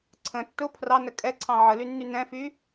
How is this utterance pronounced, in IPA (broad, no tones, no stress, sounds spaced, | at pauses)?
ǀʰ ə̃ tː ʊ pʰ r ɑ n ə kʼ ɛ ǀʰ ɑ̃ ʕ ə l y nː y n ɛ̃ f y